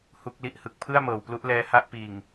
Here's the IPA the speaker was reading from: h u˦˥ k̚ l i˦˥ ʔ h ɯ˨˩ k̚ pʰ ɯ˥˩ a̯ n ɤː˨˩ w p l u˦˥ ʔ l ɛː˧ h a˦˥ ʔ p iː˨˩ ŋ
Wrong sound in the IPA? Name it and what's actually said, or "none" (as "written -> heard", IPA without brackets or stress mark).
n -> m